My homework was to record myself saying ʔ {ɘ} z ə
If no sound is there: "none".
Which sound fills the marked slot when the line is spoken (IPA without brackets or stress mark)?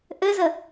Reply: ɘ